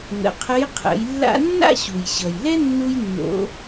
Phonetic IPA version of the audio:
ŋ ə̰˩˧ qʰ ə˧˥ j qʰ ə̰˩˧ j lː a̰˥ nː a̰˥ ɕ u˩ j ɕ ʌ˩ j l ɛ˥ nː u˥ j nː o̰˧˥

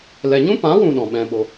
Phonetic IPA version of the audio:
l ɛ˨ ɲ ũ˦ p ã˨˦ w ũ˨ ɗ ɔ̃˨ ɓ ɛ̃˧ ɓ o˧

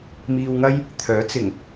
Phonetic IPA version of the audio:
m iː˧ w ŋ ɐ˥ j | t̪ʰ œː˨˥ t͡s ɪ˨˩ ŋ

